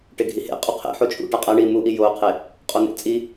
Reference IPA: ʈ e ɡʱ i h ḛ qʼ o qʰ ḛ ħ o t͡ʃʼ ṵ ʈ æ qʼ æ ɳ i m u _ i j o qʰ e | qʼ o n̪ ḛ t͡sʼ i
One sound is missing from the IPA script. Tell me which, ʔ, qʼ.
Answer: ʔ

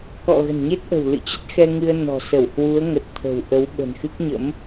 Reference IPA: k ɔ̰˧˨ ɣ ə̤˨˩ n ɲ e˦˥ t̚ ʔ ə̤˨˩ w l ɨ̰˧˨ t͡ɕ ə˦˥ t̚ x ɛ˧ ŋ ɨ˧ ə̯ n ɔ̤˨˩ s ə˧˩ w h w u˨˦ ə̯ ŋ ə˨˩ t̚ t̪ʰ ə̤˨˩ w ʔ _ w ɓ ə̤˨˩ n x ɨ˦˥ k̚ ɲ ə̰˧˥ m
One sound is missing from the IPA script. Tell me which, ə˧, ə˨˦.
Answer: ə˨˦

